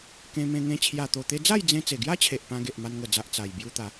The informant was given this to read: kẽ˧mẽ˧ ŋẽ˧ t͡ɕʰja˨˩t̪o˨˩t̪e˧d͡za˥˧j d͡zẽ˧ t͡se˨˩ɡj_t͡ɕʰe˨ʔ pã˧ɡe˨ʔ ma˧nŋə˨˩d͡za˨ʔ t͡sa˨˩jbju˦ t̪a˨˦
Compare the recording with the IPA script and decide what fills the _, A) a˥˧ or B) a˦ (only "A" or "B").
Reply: B